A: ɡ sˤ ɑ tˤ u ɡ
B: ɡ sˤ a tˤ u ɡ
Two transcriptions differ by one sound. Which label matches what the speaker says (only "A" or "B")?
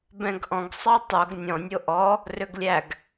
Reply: A